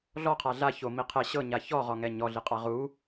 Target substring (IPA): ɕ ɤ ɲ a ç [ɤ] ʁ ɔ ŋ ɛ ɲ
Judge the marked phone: incorrect: ɔ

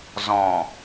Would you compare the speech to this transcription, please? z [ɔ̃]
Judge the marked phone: correct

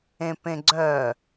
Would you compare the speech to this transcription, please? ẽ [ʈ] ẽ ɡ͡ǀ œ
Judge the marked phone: incorrect: p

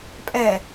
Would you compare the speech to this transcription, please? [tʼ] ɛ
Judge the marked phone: incorrect: pʼ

